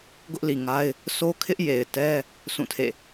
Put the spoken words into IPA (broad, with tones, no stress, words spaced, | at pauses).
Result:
ɡʊ˦ʔli˨ŋa˦ɪ̯ | sʰo˦kʰɪ˦ʔje˨ɪ̯tɛ˦ | sũ˦˨tʰḛ˦˨